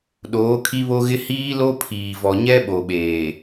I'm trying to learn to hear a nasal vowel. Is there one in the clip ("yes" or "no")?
no